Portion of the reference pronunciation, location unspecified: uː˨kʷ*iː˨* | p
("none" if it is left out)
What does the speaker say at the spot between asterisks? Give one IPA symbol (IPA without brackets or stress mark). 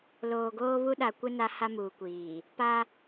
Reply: iː˨